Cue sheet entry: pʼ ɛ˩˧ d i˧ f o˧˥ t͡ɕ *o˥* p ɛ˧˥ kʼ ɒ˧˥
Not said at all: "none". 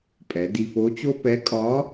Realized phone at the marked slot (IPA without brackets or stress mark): o˥